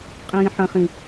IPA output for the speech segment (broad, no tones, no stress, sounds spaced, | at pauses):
qʼ ĩː ħ ɐ̃ χ ĩ